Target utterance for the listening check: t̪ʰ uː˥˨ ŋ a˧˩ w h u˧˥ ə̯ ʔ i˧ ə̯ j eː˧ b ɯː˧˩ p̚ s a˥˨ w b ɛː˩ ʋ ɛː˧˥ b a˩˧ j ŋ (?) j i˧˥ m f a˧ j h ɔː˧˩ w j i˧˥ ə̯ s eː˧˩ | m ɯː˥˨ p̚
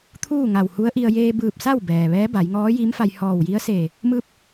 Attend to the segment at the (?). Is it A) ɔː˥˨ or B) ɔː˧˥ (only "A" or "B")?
B